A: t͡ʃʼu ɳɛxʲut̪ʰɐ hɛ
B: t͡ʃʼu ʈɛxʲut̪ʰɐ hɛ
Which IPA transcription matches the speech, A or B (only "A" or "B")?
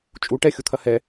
B